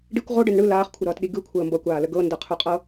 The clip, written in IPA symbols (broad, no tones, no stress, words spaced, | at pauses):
ɖikʷ ʁoɖən ɳɯ laːχkʷʰɯɾʌːtɗi ɡɯkʷʰəː mbʌkʷaːlə ɡɤndɤqʰuqʼɤ